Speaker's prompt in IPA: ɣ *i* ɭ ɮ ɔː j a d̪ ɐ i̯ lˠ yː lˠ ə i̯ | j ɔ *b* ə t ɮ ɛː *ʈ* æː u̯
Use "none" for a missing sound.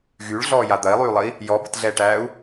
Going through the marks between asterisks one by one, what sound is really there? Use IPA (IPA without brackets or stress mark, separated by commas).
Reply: y, b, ʈ